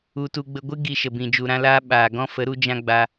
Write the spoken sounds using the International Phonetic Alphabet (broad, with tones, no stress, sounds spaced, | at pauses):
u˧ t u˧ ɡ͡b ə˧ ɡʷ ɨ˦ ɡ i˧ ʃ ə˨ b ĩ˨ d͡ʒ u˨ ɾ ã˧ l aː˧ ɓ aː˨ ɡ ɔ̃˦ f ə˨˦ ɾ u˦ d͡ʒ ã˧ ɡ͡b a˧